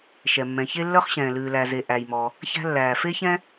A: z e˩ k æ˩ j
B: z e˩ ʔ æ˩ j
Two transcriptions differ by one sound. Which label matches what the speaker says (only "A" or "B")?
B